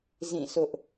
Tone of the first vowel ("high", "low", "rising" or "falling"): falling